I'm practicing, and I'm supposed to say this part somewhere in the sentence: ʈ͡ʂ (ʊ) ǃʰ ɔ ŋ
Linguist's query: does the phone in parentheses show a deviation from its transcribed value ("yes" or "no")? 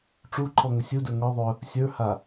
yes